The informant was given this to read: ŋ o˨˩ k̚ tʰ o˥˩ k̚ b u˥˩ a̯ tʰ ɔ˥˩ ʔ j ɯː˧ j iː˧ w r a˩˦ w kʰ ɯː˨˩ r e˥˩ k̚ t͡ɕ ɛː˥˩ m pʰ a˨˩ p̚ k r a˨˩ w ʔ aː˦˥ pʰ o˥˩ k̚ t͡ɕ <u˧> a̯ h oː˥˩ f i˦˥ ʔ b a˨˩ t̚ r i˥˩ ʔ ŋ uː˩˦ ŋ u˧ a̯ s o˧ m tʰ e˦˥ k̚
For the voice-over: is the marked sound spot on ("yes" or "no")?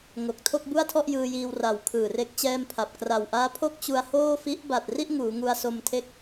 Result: yes